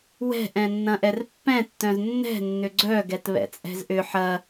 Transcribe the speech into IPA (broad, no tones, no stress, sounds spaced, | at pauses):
w ɛ̤ ʔ ɛ̃ nː ɐ̃ ʔ ɛ r pː ɛ̃ tː œ̃ z nː ɛ̤ nː ʏ ɡ͡ǀ œ ɡ ɛ t β ɛ̰ t͡sʼ ɛ̤ z ʔ ʏ ħ ɐ